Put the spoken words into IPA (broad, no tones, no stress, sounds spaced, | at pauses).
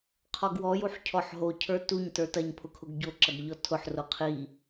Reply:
qʰ ɔ ɡ w ɔ j u ħ cʰ ɔ ħ ɦ o cʰ ə˞ t u ɲ t ə˞ t ɐ ɲ pʰ ʊ kʰ ʊ ɡ ɟ o ǁ ɐ ɡ ʎ ɔ tʰ ʊ ħ r o qʰ i